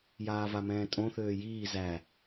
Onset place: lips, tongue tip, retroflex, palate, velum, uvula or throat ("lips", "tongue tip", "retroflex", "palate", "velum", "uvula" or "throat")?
palate